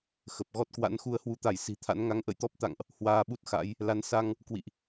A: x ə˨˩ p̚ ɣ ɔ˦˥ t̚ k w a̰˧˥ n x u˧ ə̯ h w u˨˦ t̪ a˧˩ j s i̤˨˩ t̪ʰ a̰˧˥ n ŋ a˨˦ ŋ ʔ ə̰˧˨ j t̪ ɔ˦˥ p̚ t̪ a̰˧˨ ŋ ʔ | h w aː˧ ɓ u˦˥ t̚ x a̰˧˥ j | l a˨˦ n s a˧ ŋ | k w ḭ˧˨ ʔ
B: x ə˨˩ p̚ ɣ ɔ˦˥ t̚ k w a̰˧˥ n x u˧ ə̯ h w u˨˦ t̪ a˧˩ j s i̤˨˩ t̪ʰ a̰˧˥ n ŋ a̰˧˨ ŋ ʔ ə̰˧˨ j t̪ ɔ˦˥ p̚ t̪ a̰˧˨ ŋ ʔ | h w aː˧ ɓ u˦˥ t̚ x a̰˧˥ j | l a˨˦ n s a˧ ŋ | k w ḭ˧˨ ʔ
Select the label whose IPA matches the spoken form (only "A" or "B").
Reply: A